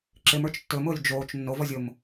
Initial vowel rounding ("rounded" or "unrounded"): unrounded